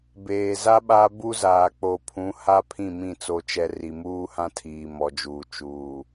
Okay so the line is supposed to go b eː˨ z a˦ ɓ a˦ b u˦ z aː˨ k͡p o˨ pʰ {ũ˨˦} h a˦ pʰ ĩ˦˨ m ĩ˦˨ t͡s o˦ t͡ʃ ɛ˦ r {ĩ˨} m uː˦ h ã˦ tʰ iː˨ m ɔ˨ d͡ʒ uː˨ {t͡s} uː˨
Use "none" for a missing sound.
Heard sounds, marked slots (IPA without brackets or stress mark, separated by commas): ũ˨˦, i˨, t͡ʃ